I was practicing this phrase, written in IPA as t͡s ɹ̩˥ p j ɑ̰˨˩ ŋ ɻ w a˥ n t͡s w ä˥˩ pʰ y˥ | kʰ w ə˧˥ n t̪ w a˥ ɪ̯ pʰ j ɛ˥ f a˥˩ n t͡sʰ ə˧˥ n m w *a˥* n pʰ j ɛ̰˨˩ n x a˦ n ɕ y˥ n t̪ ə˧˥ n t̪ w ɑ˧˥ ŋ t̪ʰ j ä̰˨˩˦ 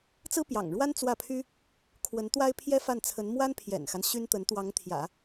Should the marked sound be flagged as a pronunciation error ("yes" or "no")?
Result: no